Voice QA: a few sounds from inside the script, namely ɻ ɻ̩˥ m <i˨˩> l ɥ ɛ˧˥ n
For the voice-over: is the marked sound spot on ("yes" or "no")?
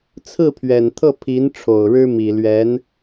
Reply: yes